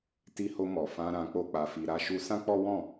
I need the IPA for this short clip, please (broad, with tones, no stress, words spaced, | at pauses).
ti˧ho˧mɔ˨fã˧ ɾã˧k͡po˦k͡pa˧fi˧ ɾa˧ʃu˧sã˦k͡pɔ˦ wɔ̃˦˨